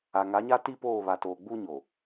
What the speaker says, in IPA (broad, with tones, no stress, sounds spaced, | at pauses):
a˨ ŋ a˨˦ ɲ a˦ t i˦ p oː˦˨ β a˨ t oː˨ ɡ͡b uː˦ ɲ o˨